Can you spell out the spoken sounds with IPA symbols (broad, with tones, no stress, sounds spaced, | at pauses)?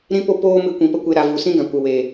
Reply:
ɾ ĩ˦ p o˦ p oː˦ m ɨ˧ kʷ ĩ˨ p ə˧ kʷ e˧ ɾ a˨ v u˨ s ĩ˦ ɡ ã˨ kʷ ə˨ w eː˨